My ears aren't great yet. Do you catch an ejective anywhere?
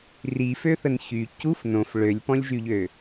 no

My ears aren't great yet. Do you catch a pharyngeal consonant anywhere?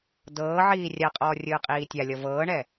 yes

